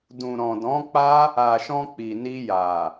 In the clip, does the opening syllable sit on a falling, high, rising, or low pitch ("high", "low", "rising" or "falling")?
low